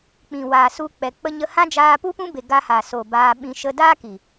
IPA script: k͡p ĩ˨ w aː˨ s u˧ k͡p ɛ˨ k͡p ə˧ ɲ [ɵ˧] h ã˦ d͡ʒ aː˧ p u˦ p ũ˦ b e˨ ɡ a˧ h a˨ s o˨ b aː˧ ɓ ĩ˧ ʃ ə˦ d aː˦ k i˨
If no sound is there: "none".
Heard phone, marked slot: ə˧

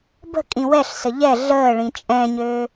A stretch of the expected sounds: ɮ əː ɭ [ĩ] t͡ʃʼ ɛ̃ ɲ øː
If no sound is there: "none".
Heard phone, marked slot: ĩ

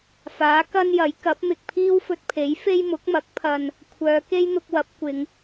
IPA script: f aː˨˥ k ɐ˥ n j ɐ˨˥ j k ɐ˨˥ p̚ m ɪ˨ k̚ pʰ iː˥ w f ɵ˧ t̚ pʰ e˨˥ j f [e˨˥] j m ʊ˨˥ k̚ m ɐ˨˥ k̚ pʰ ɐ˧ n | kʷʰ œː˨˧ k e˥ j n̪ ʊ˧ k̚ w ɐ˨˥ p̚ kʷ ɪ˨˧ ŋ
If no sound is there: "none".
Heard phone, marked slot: e˥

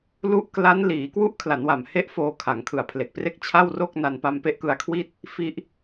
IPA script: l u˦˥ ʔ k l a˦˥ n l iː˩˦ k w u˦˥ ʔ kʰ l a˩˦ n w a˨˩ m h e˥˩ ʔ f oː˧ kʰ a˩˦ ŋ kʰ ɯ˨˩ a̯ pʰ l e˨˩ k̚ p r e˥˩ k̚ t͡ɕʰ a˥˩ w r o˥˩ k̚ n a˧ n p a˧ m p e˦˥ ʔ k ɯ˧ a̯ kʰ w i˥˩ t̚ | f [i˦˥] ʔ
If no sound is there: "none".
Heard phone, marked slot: i˦˥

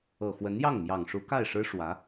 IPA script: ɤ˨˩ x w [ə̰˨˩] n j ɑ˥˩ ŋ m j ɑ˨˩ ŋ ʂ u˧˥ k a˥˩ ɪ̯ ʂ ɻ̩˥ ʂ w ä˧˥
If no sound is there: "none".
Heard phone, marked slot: ə˧˥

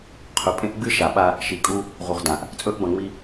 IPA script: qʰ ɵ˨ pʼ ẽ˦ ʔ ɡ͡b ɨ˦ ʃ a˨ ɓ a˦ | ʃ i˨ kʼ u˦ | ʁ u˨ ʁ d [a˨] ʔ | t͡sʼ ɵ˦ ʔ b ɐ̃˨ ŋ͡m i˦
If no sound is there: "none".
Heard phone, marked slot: ã˨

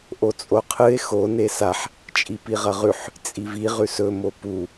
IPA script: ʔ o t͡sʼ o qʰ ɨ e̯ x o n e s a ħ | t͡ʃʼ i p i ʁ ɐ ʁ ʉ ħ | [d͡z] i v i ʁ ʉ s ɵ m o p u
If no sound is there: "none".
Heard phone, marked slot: t͡sʼ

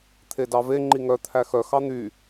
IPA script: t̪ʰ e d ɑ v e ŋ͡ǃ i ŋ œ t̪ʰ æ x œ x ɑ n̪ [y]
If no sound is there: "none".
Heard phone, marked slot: y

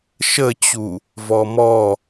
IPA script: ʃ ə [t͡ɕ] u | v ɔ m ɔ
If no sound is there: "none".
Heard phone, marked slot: t͡ɕ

